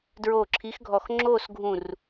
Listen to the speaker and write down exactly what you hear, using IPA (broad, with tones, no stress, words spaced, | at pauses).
dɹoː˧˩ǁʰi˨˥xɡʱɔ˧˩x ŋ͡ǁoː˥˨sɡʱũ˧˩r